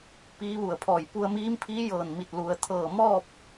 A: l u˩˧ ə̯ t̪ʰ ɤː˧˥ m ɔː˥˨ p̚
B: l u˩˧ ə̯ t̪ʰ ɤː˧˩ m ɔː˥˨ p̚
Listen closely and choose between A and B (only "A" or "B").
B